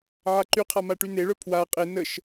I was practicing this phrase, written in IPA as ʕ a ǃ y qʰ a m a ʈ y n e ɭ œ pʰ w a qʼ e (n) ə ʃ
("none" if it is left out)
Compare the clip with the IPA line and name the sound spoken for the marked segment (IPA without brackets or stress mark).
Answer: n